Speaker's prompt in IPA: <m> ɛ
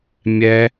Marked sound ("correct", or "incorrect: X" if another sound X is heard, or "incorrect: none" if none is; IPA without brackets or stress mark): incorrect: mʲ